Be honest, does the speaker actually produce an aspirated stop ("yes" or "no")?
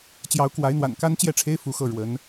yes